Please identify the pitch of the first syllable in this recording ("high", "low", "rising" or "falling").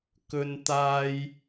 high